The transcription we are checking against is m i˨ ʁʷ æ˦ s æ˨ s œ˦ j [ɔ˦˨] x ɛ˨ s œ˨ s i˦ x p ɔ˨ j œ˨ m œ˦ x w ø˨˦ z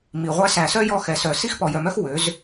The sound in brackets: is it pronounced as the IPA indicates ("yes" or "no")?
yes